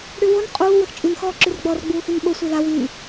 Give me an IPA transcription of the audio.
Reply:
ɽywon qʼuː wəxt͡ʃʼyn xɔːǁyrɡ͡bɔr ɡ͡buːxynɓo sʷila wyː

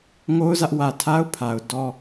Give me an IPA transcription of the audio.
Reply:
ŋo˦ʊ̯zä˦ʔwä˨ tʰa˦ʊ̯ pʰa˨ʊ̯ dɔ˦

